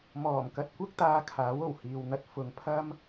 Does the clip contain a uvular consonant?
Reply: no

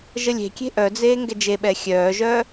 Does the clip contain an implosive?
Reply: yes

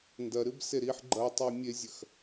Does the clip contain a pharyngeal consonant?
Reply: yes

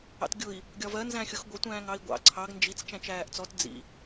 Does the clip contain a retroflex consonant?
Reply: no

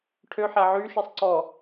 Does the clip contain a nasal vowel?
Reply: no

